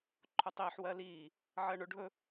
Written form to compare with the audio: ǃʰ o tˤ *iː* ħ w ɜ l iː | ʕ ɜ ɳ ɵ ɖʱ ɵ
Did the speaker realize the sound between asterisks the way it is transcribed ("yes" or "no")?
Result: yes